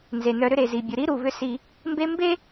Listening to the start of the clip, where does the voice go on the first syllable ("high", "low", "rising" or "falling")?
low